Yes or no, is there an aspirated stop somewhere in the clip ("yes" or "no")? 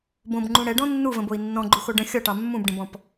no